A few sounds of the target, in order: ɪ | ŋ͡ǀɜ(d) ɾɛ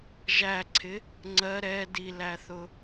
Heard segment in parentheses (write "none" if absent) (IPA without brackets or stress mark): none